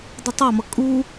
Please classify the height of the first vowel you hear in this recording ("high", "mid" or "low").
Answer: high